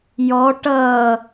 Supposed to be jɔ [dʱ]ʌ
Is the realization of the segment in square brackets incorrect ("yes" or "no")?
yes